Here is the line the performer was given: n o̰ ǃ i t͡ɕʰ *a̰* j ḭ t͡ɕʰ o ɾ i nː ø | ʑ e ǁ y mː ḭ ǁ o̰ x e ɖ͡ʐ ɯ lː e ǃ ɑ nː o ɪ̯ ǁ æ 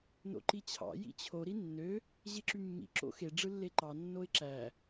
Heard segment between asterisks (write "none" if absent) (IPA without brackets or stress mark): ɑ̰